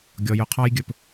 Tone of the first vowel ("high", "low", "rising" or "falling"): low